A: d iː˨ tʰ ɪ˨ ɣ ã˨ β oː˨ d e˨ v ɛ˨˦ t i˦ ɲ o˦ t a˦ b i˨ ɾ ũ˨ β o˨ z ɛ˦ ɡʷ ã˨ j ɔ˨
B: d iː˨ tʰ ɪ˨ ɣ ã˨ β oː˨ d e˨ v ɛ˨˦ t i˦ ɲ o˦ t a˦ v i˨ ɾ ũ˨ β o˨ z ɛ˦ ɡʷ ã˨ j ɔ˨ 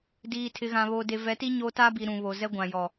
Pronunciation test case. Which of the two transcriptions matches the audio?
A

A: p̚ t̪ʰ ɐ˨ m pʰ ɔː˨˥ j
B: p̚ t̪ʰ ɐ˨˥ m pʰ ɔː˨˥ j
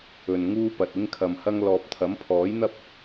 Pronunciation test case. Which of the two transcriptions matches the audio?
B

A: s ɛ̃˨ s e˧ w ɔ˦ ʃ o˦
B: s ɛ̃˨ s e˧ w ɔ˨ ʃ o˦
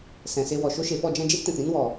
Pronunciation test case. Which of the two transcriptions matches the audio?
B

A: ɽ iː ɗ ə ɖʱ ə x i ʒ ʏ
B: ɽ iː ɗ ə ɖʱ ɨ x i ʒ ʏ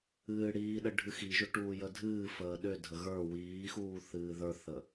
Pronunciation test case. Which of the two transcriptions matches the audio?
B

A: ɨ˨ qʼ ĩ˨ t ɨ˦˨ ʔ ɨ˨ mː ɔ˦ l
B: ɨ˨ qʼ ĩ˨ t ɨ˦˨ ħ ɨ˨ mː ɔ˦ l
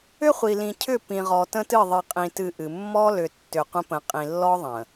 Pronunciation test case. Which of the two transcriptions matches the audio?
A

